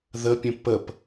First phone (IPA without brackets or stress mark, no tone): ð